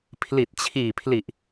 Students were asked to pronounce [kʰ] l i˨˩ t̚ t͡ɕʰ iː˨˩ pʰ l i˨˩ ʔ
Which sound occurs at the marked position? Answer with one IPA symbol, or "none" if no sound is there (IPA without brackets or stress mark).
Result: pʰ